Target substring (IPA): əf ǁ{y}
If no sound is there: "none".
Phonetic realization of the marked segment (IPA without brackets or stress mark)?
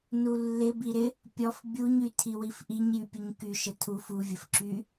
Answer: y